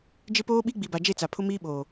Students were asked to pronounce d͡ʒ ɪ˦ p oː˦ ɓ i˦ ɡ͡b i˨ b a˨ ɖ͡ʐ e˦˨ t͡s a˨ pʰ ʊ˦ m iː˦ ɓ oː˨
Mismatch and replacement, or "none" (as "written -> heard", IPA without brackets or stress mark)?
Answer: ɖ͡ʐ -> d͡ʒ